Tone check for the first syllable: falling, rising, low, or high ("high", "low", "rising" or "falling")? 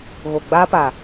low